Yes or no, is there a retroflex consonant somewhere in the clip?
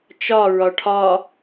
yes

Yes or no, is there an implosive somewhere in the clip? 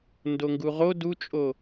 no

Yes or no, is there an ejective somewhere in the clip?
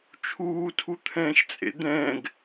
yes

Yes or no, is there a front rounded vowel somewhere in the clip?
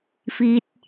no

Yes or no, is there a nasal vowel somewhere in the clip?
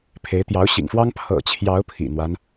no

